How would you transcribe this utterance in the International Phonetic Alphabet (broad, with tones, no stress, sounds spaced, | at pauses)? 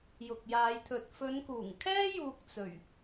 j ʊ˨ k̚ j aː˨˧ j t̪ʰ ɵ˨ t̚ f ɵ˨˧ n k uː˨˩ ŋ kʰ ɛː˥ j uː˨ k̚ t͡s ɵ˨˩ ɥ